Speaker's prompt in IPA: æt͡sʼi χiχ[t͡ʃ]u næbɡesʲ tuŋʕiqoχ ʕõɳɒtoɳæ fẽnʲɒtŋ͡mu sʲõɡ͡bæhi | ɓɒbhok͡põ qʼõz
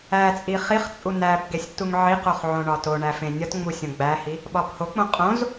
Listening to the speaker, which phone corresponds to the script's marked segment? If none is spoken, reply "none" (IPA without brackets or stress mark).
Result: t͡sʼ